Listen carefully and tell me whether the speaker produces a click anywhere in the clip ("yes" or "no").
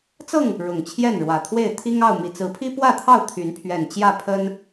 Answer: no